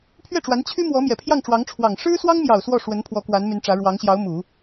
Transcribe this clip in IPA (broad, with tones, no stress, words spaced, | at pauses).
pʰɥɛ˥˩ʈ͡ʂwa˧˥n t͡ɕʰy˥ mwɔ˧˥mjɛ˨˩pʰjɑ˥˩ŋʈ͡ʂwɑ˧˥ŋ ʈ͡ʂʰwɑ˨˩ŋ ʂɻ̩˥swɑ˥ŋmjɑ˨˩ʊ̯ swɔ˥˩ʂwə˧˥n pʰwɔ˧˥kwa˧˥n my˧˥nʈ͡ʂä˧˥ ɻwɑ˧˥ŋɕjɑ˧˥ʊ̯ mu˨˩˦